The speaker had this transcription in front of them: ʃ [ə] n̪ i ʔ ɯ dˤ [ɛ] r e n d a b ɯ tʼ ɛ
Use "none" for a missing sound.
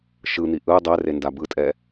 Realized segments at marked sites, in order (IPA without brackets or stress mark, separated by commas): ɯ, ɛ